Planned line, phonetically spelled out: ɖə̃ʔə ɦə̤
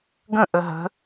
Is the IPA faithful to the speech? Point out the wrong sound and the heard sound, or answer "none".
ɖ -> ɡ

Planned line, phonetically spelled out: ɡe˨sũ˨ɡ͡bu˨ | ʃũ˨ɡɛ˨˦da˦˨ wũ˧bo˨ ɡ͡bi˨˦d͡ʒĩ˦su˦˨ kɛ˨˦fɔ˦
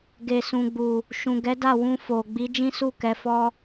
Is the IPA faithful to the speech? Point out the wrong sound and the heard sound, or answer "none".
b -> f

